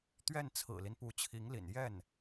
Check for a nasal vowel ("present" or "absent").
absent